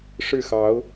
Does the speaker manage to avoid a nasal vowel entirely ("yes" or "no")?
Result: yes